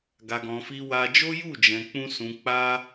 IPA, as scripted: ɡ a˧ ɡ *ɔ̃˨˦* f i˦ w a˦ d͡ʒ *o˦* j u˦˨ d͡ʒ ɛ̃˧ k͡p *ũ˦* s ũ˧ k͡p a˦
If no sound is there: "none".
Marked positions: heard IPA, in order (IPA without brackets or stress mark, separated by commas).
ɔ̃˧, o˦, ũ˦